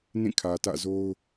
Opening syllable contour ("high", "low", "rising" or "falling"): falling